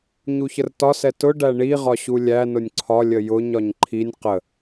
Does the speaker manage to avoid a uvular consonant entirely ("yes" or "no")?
no